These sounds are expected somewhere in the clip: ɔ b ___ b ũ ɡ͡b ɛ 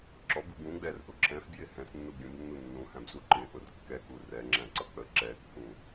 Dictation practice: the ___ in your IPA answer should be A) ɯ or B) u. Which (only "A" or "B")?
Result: B